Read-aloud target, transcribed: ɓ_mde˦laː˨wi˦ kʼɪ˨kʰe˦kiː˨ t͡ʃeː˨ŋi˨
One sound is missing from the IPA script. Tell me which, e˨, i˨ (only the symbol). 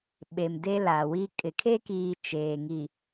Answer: e˨